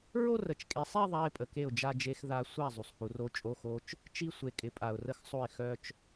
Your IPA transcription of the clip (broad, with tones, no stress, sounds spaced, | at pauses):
ɹ o˥˧ r ə˨ t͡ʃ kʼ e˨˦ sˤ e˥˧ ðˤ a˧˥˧ ɪ̯ pʼ ə˨ k e˥˩ ʊ̯ d͡ʒ a˥˧ d͡ʒ e˧˥˧ x ð a˦˥ sʷ a˥˩ zˤ u˨ sˤ h u˨˦ r o˦˥ t͡ʃʼ o˧˥˧ x o˦˥ t͡ʃ | t͡ʃ i˥˧ sʷ e˨ kʼ ɪ˨˦ pʼ a˨ ʊ̯ r ə˥˩ x sˤ o˥˩ ɪ̯ x œ˥˧ t͡ʃ